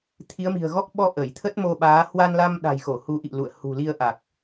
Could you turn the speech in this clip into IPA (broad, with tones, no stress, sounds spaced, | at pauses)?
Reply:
t̪ʰ i˨˦ ə̯ m i̤˨˩ ə̯ ɣ ɔ˦˥ k̚ ɓ ɔ˧ ʔ ə˧˩ j t̪ʰ ə˦˥ t̚ m o˧ ɓ aː˨˦ h w a˧ n l a˧ m ɗ a̤˨˩ j x o˧˩ h u˨˦ ʔ ḭ˧˨ l ṵ˧˨ ə̯ h ṳ˨˩ l i˧ ə̯ ʔ a˨˩ k̚